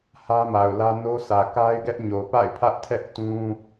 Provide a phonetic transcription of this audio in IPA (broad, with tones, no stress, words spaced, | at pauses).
hä˦ma˨ʊ̯lä˦ no˦sʰä˨ ka˦ɪ̯ɡɛ˦ʔɲo˨ pa̰˦˨ɪ̯pʰä˦ʔtʰɛ˦ʔ tũ˦